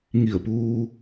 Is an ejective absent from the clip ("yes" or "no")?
yes